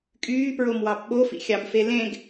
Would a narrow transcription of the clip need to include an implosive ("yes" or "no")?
yes